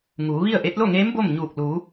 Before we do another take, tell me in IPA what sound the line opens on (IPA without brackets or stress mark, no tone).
ŋ